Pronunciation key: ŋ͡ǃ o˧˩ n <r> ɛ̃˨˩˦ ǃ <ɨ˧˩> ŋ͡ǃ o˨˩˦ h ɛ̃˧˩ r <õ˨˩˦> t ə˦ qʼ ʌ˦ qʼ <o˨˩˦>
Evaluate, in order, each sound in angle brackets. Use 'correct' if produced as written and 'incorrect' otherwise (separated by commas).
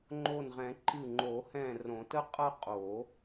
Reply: incorrect, correct, correct, correct